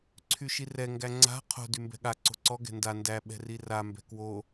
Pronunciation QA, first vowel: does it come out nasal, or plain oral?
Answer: oral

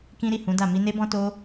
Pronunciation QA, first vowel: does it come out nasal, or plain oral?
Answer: nasal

